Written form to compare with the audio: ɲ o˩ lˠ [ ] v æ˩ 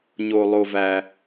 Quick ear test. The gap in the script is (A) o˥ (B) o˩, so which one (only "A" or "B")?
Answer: B